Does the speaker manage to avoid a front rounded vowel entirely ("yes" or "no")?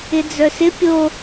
no